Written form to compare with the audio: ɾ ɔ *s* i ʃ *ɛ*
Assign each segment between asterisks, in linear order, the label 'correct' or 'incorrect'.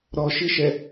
incorrect, correct

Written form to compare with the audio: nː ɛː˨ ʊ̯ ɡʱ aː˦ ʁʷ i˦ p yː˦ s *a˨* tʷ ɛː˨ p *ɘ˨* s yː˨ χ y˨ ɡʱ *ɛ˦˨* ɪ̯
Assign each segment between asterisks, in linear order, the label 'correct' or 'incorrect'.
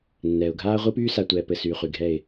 correct, correct, correct

